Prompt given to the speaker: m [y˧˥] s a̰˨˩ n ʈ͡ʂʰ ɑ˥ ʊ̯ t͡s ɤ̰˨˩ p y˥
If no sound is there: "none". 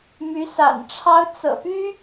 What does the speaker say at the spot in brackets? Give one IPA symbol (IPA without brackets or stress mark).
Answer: y˧˥